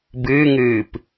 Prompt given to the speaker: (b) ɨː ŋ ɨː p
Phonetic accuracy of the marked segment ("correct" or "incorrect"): correct